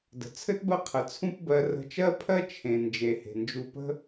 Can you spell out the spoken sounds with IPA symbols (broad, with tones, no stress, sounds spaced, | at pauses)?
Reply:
d ə̤˩ t͡sʰ ɘ˥ t b ɜ˦ qʰ ə˩ t͡sʰ ũ˦ p b ɜ˨ r ə̤˨ t͡ʃ ɜ˦ pʰ ɜ˦ t͡ʃʰ ẽ˩ n d͡ʒ e˩ h e̤˩ n d͡ʒ u˨ p ə̤˦